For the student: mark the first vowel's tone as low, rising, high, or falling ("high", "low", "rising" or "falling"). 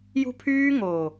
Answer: high